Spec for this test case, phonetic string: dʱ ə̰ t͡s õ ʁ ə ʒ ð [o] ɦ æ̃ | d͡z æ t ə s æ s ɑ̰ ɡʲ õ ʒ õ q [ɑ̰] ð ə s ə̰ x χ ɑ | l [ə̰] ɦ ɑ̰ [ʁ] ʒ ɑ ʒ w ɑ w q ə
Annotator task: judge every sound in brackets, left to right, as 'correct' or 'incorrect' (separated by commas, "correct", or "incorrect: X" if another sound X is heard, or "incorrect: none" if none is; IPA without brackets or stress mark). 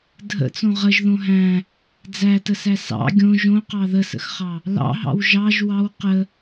incorrect: õ, incorrect: ɑ, incorrect: ɑ̰, incorrect: w